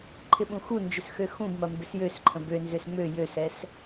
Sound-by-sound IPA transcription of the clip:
ǃʰ ɪ ɓ ũ x u n d͡ʒ ʏ s x ø x ũ b m ɐ m b ɪ s j ø s ǃʰ ə̃ b ø n z ʏ s m ø j ø s ɛ s

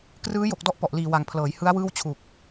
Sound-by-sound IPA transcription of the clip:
k r ɯː˦˥ j o˨˩ k̚ d ɔ˦˥ ʔ p ɔ˨˩ ʔ l iː˨˩ w a˨˩ ŋ pʰ l ɤː˩˦ j h ɯ˦˥ a̯ w ɯː˥˩ w t͡ɕʰ u˨˩ k̚

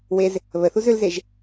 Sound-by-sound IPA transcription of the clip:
w e z | β ə θ u z ʏ l z e ʒ

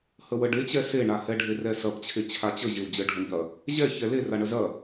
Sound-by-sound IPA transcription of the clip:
h ə w ə ɖ e t͡ɕ ɛ s e ɳ a h ɛ ɖʱ e r ɛ s ɐ p t͡ɕʰ e t͡ɕʰ a t͡ɕ ə ʑ e w d͡ʑ ə ɖʱ ə ɳ ʎ ɐ | ʑ ɛ ç ɛ l e r a ɳ ə z ɐ

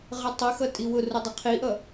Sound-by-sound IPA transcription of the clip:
ʁ ə tˤ ɪ x ʌ tʼ i w ʊ r ʊ dˤ ɪ qʰ i ʔ ʌ

